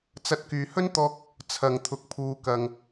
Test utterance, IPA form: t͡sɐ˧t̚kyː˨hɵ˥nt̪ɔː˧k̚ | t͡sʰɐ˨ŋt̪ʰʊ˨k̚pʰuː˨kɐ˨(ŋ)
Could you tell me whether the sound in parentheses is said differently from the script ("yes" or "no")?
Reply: no